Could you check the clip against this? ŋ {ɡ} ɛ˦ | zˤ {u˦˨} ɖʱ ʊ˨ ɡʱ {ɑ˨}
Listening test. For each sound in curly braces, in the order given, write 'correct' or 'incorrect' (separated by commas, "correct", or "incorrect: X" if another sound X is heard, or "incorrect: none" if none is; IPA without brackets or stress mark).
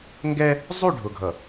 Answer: correct, correct, incorrect: ʌ˨